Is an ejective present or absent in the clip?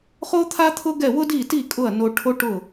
present